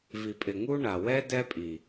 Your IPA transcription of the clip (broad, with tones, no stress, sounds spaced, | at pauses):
v i˨ pʼ ɪ˨ ŋ u˦ ɳ a˨ w ɛ˦ d ɛ˦ pʼ i˨